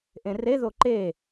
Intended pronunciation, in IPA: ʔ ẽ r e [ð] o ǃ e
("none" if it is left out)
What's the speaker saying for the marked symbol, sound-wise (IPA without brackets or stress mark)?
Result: ð